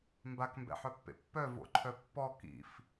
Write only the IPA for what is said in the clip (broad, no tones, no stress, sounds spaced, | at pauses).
m b a k m b ɛ̰ ħ œ pː ḛ pː œ v o̰ ǃʰ œ pː ɔ k ḭ f